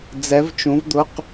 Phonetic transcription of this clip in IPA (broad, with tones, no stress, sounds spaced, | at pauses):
d͡z ɛ˧˥ v t͡ʃ ũ˧˥ v d̪ ʊ˧˥˧ q